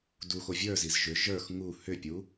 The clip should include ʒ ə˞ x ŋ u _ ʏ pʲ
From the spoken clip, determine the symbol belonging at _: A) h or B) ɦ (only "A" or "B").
A